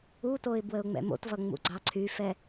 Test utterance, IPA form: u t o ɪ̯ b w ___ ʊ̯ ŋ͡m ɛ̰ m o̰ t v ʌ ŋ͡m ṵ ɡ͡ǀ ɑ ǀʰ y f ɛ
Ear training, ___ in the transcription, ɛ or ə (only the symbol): ə